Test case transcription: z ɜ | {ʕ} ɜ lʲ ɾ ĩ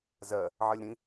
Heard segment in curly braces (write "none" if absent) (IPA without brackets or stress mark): ʕ